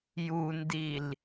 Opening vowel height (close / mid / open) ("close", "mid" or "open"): close